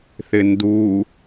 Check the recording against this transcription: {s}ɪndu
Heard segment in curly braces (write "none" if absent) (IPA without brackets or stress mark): θ